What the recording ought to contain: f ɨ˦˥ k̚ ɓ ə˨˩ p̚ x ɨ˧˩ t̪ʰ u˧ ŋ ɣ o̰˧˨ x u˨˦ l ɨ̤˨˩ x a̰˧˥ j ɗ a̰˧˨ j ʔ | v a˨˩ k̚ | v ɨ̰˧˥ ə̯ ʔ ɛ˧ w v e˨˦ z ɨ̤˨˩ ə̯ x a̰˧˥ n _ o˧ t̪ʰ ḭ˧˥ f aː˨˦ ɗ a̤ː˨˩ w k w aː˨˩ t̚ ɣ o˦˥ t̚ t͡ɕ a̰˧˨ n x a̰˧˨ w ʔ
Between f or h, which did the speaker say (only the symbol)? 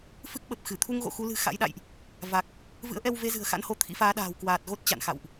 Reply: h